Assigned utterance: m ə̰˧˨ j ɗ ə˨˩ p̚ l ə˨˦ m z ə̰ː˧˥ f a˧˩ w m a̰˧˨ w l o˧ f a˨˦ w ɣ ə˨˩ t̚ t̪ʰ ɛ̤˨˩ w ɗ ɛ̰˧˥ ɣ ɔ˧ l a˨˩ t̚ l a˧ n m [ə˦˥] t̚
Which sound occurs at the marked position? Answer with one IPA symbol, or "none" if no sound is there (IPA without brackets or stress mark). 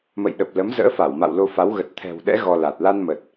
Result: ə˨˩